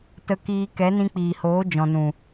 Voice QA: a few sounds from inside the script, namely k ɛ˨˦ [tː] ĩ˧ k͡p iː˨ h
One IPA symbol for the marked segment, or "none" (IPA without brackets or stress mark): n